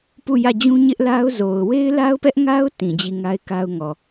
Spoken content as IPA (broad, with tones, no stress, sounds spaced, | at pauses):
p u˦˨ j ä˦˨ d͡ʑ ũ˦ ɲ ɪ˦ ʔ l a˦ ʊ̯ z o˨ ʊ̯ w e˦ ɪ̯ l a˦ ʊ̯ p ɛ˦ ʔ ŋ a˦ ʊ̯ t ĩ˨ d͡ʑ i˦˨ ŋ a˦ ɪ̯ k a˦ ʊ̯ ŋ ɔ˨